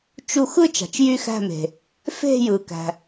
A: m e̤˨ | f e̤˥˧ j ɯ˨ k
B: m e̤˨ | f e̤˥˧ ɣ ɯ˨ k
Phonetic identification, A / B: A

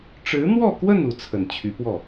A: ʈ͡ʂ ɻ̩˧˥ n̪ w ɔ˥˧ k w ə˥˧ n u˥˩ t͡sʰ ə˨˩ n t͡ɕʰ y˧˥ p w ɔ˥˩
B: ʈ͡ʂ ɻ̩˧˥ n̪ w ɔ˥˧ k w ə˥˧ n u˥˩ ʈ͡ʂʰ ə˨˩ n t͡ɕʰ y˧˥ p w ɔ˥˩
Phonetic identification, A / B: A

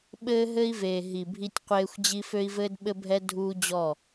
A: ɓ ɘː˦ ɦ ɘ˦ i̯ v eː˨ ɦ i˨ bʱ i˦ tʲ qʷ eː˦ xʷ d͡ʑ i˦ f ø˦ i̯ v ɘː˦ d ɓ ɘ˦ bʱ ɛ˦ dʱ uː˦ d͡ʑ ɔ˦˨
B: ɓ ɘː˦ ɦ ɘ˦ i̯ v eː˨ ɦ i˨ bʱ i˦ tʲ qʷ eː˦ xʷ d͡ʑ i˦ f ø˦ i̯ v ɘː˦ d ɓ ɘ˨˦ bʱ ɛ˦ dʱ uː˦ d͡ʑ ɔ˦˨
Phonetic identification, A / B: A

